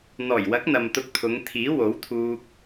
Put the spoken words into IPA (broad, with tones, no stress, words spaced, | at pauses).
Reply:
n̪ɔː˨˩jwɐ˨˥k̚ n̪ɐ˨mt̪ʊ˧k̚t̪ʰʊ˨˧ŋ t̪ʰiː˨˥wo˨˥wt̪ʰuː˧k̚